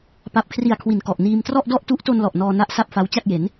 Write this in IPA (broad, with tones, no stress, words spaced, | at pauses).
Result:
pa˨˩p̚kʰri˨˩a̯ kʰwi˨˩nkɔ˨˩ʔniː˧m trɔ˥˩ʔdɔ˥˩ʔtu˦˥ʔto˧n lɔ˨˩ʔnɔː˧ na˥˩ʔsa˥˩p̚ fa˦˥w t͡ɕa˥˩k̚je˩˦n